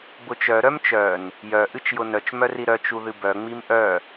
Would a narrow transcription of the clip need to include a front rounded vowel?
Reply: yes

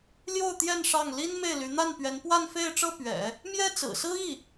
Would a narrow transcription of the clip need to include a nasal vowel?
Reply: no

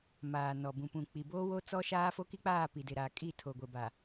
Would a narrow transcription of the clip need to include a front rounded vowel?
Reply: no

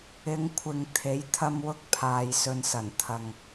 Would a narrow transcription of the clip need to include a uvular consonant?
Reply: no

